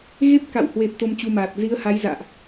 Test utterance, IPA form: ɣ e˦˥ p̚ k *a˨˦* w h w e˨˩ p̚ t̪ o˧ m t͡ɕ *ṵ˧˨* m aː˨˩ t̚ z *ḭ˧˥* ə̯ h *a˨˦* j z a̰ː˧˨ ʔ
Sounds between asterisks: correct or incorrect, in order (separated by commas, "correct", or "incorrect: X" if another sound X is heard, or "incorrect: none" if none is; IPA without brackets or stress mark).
incorrect: a̰˧˨, incorrect: u˧, incorrect: i˨˦, correct